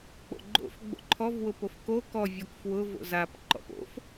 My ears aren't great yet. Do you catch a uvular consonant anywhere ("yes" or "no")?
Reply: no